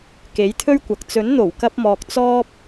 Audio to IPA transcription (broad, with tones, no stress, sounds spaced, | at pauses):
k e˨˥ j t̪ʰ ɵ˥ ɥ kʷ ɐ˨ k̚ t͡s ɵ˨˥ n n̪ o˨˩ w k ɐ˧ p̚ m ɔː˨ k̚ t͡s ɔː˥ p̚